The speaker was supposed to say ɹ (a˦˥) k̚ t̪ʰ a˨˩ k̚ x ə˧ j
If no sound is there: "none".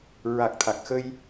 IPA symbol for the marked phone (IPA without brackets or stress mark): a˨˩